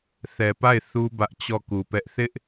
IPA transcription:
θ ɛ˨ p a˦˨ ɪ̯ θ u˦ b ä˦ ʔ t͡ɕ ɔ˦˨ k u˨ p ɛ˦ ʔ θ ɪ˦ ʔ

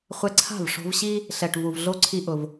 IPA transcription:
χʷ ɛ˧ ǀʰ a̤˦˨ v ʂ o̤˧ v ɕ i˦ | ɬ ɛ˨ ʈ v u˨ v ɮ o˦ ǀʰ i˦ ʔ ʊ˧ v

